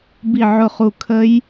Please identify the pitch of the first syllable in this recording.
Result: falling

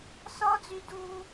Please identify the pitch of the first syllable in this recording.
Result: high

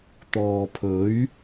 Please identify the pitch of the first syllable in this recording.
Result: low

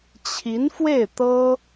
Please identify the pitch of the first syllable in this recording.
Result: rising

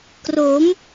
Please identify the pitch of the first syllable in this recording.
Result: rising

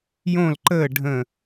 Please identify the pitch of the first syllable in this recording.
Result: falling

